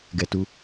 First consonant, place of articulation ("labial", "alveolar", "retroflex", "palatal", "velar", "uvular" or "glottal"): velar